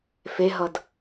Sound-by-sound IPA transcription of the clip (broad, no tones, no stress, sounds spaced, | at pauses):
f e ɦ ʌ d